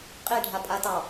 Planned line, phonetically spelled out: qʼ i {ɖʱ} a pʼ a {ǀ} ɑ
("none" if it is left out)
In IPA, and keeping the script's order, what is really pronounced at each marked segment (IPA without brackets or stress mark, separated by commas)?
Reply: ɖʱ, t